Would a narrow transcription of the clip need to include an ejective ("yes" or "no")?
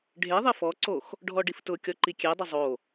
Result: no